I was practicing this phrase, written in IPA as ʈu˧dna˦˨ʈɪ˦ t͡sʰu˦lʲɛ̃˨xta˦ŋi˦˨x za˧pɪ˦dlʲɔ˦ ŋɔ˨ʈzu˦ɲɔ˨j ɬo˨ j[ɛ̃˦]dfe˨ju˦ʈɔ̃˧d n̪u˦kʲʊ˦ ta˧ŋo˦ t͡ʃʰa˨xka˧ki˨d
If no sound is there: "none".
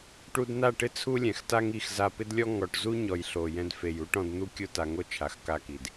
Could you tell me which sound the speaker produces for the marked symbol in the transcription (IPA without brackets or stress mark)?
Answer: ɛ̃˧